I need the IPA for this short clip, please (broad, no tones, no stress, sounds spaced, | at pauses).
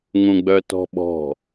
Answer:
ŋ ũ ɡ͡b œ t ɔ̤ ɓ ɔ̤